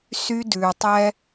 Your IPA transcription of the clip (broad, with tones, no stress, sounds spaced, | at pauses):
s y˦ d ʉ˨ tˤ ɛ˦